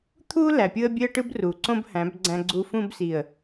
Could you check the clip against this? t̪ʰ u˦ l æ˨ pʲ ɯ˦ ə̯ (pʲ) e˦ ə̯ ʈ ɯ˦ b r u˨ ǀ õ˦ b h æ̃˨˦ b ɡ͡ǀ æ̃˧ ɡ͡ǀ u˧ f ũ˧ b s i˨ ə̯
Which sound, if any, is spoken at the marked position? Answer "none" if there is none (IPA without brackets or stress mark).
bʲ